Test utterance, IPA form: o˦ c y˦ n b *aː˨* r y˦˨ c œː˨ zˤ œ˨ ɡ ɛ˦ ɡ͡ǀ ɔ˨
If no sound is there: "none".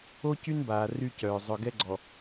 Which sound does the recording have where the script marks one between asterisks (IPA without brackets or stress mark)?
aː˨